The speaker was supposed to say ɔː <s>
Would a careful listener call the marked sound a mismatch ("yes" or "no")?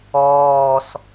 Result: no